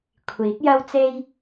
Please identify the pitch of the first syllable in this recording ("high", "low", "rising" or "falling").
rising